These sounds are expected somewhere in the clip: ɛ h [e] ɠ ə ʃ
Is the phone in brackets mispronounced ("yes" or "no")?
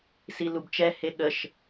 no